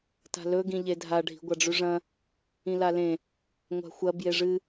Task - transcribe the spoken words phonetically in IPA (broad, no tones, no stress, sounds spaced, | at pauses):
t a̤ l ɵ ɡ ĩ ʎ e dʱ a ɖʱ i̤ ɡʷ a ɖ͡ʐ ʉ ʐ ɐ̃ | ĩ l a l ẽ | ŋʷ a̤ xʷ ɐ b j e ʐ ɨ